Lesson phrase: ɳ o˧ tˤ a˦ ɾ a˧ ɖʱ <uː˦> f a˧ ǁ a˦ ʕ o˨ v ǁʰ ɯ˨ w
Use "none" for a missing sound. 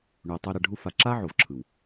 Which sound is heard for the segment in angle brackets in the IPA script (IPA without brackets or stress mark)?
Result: u˦